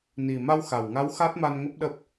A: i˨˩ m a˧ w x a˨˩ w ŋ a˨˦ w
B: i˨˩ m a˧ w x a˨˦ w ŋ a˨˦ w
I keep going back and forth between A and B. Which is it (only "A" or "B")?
A